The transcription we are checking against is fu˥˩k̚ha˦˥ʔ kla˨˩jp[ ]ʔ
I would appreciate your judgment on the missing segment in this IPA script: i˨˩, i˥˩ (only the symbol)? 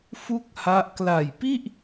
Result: i˥˩